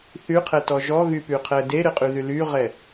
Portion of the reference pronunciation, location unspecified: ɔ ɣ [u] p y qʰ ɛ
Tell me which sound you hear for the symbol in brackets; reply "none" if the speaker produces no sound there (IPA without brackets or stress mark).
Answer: y